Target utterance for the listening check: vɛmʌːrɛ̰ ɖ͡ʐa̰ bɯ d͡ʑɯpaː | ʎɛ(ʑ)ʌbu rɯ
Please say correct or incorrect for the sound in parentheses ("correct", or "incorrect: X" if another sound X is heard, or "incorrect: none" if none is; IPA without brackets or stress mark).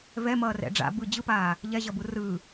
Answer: correct